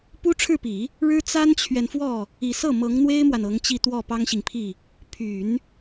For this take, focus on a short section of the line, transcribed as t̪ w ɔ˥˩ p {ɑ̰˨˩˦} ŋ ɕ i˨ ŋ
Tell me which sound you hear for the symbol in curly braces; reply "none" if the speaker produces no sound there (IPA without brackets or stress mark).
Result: ɑ˥